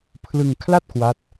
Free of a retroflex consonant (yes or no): yes